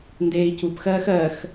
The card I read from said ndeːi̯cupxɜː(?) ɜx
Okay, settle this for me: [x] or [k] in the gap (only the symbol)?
x